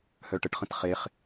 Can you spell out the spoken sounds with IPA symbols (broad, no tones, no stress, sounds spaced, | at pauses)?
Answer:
h œ ʈ ə ʈ χ ə̃ t χ e χ